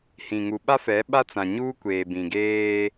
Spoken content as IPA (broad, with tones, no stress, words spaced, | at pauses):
hĩ˨ŋu˨ɓa˦fɛ˨˦ ɓa˦t͡sã˨ɲuː˦ kʷeː˨bĩ˨ ɡeː˦